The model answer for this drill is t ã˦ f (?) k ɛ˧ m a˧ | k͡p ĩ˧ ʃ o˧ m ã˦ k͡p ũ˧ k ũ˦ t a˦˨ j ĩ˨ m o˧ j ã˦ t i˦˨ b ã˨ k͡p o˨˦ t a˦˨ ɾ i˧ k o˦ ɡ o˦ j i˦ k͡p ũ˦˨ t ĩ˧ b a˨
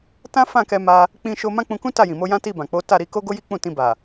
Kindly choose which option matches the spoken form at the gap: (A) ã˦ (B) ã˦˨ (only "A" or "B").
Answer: B